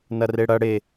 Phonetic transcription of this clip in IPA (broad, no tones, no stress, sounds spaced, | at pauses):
n ɐ r e ɽ ɐ ɽ e